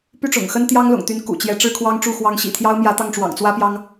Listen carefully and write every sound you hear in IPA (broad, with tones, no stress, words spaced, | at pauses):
py˥˩ʈ͡ʂʊ̰˨˩ŋxə˥n t̪jɑ˥ŋlʊ̰˨˩ŋt̪y˧˥n kṵ˨˩t͡ɕjɛ˧˥ ʈ͡ʂɻ̩˥˩kʰwɑ˥ŋʈ͡ʂu˥˩ xwɑ˧˥ŋɕḭ˨˩t̪ʰjɑ˥ʊ̯mjä˧˥ t̪ɑ˥˩ŋʈ͡ʂwɑ̰˨˩ŋ t͡swä˥pjɑ˥ŋ